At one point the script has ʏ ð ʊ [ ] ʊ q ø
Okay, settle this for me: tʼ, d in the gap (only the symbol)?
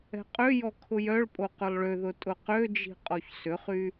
tʼ